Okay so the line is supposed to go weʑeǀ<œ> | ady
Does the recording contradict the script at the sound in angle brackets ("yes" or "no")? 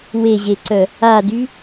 no